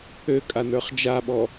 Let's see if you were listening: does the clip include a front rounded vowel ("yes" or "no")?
yes